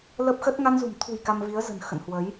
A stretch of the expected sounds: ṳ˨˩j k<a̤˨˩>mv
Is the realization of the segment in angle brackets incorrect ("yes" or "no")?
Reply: yes